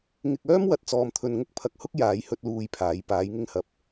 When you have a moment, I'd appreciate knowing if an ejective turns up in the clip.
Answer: no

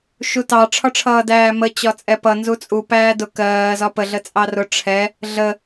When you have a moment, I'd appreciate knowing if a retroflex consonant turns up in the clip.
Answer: yes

